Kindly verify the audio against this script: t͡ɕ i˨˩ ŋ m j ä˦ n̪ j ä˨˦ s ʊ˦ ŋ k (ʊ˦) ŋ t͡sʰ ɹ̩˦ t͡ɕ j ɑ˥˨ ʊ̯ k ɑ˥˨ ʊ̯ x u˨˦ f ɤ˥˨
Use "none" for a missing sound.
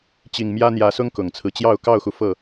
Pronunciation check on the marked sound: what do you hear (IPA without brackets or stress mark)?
ʊ˨˩